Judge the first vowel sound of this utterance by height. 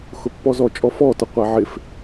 high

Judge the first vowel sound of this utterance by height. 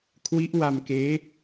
high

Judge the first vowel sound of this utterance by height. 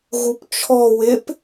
high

